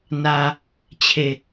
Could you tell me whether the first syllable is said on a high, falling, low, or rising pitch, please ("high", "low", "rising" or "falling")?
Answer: low